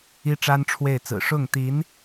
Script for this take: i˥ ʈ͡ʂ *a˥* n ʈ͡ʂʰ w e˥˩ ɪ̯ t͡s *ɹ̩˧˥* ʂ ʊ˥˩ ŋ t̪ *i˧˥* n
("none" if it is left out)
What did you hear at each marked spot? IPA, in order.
a˥, ɹ̩˨˩, i˧˥

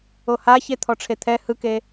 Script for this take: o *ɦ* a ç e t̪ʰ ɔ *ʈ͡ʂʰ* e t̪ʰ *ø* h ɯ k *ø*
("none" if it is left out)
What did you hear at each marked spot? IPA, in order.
h, ʈ͡ʂʰ, ɛ, e

